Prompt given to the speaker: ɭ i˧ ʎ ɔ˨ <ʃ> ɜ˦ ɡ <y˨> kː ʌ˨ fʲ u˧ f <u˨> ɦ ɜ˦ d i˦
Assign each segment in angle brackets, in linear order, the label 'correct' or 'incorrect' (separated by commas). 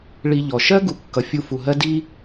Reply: correct, incorrect, correct